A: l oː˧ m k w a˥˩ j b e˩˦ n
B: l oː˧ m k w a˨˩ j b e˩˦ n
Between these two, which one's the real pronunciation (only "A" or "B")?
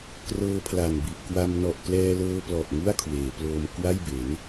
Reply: A